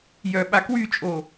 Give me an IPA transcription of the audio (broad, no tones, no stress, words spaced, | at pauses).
jœɓakwyt͡ʃʼo